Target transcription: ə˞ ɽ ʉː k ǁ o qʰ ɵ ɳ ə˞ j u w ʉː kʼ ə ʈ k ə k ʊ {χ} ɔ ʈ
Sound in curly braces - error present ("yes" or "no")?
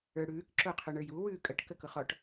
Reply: no